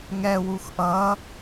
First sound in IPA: ŋ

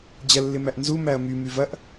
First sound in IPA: d͡ʑ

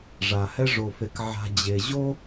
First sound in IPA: ʐ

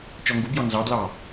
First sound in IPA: t͡ʃ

